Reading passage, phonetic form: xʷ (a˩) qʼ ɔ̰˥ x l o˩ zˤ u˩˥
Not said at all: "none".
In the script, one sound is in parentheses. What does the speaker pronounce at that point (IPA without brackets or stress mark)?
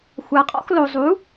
a˩